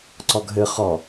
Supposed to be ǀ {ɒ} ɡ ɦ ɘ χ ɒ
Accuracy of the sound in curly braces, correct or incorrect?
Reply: correct